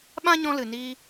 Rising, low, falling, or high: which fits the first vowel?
high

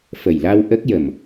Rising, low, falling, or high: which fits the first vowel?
low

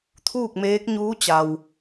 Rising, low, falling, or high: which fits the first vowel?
falling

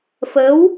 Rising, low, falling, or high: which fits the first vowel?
rising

